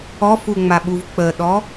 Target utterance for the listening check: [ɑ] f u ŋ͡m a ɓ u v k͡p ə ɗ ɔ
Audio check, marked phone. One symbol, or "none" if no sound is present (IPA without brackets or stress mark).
ɔ